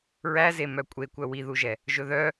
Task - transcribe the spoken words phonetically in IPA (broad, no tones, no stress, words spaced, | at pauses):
ɹæze mœkʷʼekʷœ wiðuʒɛ | ʒɵðœ